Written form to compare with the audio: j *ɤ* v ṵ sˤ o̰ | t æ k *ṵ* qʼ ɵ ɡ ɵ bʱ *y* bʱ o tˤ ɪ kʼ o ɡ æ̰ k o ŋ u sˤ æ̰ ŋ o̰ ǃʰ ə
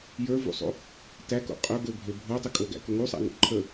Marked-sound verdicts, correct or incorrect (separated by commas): incorrect, incorrect, incorrect